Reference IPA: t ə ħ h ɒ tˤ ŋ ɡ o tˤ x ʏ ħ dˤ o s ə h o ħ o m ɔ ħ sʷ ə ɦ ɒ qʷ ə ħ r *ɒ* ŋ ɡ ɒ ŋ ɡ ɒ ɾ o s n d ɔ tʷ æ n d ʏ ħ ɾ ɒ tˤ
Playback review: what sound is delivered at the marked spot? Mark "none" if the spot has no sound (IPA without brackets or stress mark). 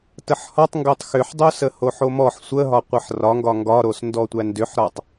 ɒ